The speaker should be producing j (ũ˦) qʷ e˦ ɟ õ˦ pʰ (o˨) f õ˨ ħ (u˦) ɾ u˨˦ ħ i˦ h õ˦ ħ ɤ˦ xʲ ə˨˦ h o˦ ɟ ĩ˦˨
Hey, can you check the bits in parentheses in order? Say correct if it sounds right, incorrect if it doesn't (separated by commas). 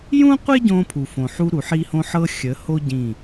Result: correct, incorrect, correct